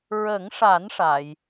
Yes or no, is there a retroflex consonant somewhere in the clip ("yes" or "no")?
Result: yes